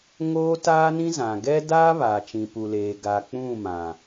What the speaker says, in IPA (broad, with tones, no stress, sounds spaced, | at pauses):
ŋ oː˦ t aː˦ n ĩ˦ z ã˨ ɡ ɛ˦ d aː˦ β aː˨ t͡ʃ ĩ˨ p u˨ l eː˨ ɡ a˨ k͡p ũ˦˨ m ã˨